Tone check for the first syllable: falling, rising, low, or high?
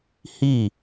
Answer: falling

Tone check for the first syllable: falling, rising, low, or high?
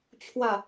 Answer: low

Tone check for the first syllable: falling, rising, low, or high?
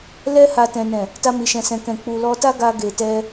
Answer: high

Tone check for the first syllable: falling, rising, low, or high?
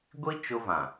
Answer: high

